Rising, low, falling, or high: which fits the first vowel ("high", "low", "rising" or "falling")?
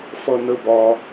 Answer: low